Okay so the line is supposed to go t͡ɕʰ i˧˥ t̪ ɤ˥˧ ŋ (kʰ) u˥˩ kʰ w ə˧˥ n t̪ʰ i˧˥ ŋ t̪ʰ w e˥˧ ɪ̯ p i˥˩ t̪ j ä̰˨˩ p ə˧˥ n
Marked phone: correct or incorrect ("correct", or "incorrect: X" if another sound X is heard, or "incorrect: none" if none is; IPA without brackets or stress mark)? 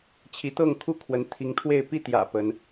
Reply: correct